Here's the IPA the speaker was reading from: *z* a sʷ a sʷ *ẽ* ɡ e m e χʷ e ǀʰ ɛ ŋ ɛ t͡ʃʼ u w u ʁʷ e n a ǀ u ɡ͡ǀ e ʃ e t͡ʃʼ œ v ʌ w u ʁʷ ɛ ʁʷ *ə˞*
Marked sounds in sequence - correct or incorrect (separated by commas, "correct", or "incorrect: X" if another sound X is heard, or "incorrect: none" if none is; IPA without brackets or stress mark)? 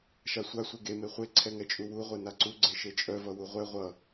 incorrect: ʃ, incorrect: e, incorrect: ʌ